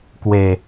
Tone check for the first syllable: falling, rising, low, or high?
low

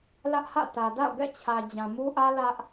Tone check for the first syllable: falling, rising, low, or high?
high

